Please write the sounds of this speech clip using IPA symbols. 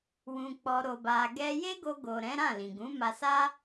w ũ˧ k͡p ɔ˧ ɾ o˧ b a˧ ɡ ɛ˦ j e˦ ɡ o˧ ɡ o˨ ɾ ɛ̃˨˦ ɾ ã˦˨ l ĩ˨ ɡ ũ˨˦ m a˧ s a˦

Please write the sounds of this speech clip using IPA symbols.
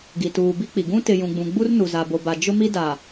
ɡ i˨ t uː˨ b i˦ k͡p i˨ ɡ ũ˦ t ɪ˨ j ũ˨ ɡ͡b ũ˨ ɡ͡b u˦ r n u˨ z a˨ b o˨ b a˨ d͡ʒ ʊ˦ m i˦ d a˨

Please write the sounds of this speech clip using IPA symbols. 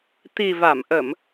t̪ i˨˩ v a˧˩ m ʔ ə˧˩˨ m

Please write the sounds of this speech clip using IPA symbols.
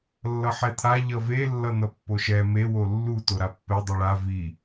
lː ʌ ħ ɛ t̪ʰ a ʎ ʌ v e lː ʌ n̪ ʌ pː o ʃ ɛ m e w o lː u t o ɾ a pː ɛ dˤ i ɭ a v i

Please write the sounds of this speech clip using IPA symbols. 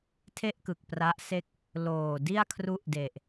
tʰ e˥˩ ʔ k ɯ˨˩ k̚ p r a˦˥ ʔ s e˥˩ k̚ | l oː˨˩ d i˥˩ a̯ kʰ r u˦˥ ʔ d e˨˩ ʔ

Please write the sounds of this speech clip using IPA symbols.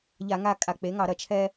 ʎ a˧˩˧ ŋ a˦˨ kʼ a˧˩˧ k͡p e˩˥ ŋ ɑ˧˩˧ ɾ ɐ˧˩˧ t͡ʃʰ ɛ˦

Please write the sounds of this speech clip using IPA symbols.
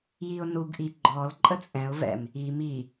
j i ʊ̯ n u ɡ ʔ i ɡ͡ǃ ɔ l ǃʼ ə t͡sʼ ɛ̃ ʊ̯ v ɛ̰ m | i m i

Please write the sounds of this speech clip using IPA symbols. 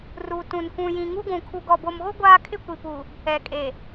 r u˨ t ũ˨ n kʷ ũ˨ j ĩ˨ ŋ u˦ ɡʷ ũ˨ kʰ u˨ ɡ ɔ˨ b o˨ m ɣ o˦ ɡʷ aː˦ kʰ ɪ˦ kʷ i˨ p uː˨ | ɛ˨ kʼ e˨

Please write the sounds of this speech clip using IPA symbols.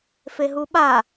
f e ɦ u ɓ a

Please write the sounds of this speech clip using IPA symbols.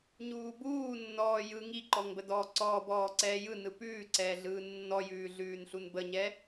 ɲ uː b uː nː ɔː j ɯ ŋ i ǃ ɔ ŋ b ə d ɔː ǀ ɔː b ɔː ǀ ɛː j ɯ n ɯ p ʉː ǀ ɛː ɮ ɯː nː ɔ j ʉː ɮ ʉː n ɬ u n b ə ɲ ɛ

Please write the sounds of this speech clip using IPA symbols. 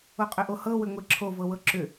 o qʼ ʏ ʔ o h ɤ w ʏ ŋʷ e ǁʰ o v ɤ w ɤ ǁ ʏ

